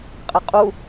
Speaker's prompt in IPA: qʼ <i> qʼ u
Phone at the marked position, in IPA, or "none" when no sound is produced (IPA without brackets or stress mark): e